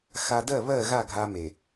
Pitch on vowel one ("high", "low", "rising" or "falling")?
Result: low